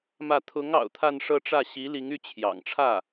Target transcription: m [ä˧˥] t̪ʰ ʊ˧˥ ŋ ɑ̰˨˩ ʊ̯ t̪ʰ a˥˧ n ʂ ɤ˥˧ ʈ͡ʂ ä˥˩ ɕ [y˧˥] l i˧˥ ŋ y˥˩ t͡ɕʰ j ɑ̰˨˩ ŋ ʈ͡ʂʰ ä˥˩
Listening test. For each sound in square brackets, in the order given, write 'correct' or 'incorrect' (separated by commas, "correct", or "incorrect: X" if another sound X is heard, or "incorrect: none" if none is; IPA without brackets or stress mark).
incorrect: ä˥˩, incorrect: i˧˥